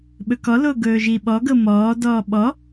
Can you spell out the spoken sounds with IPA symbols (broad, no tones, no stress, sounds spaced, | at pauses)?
ɓ ɵ k ɔ l o ɡ ɵː ʒ i ɓ ɔ ɡ ɤ m ɔː d ɔː ɓ ɔ